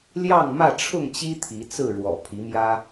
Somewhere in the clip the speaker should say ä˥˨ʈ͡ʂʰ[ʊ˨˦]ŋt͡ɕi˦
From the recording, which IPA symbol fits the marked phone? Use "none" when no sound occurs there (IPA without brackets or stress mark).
ʊ˥˨